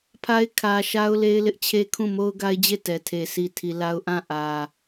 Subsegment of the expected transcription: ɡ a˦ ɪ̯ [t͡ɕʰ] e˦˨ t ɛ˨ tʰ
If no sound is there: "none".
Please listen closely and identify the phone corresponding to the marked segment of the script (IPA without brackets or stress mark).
d͡ʑ